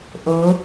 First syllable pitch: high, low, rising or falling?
rising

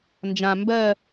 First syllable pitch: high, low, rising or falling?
low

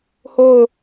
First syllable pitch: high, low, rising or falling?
falling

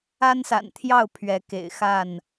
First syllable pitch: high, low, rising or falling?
high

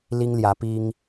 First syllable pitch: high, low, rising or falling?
high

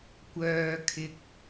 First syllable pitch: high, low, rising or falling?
low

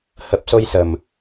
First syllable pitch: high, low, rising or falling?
low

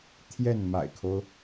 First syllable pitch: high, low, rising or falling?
falling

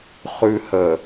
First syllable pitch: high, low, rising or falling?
low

